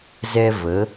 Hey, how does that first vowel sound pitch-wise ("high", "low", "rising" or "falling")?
high